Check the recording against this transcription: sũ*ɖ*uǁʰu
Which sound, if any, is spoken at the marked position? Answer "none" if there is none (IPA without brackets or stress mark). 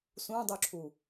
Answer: dˤ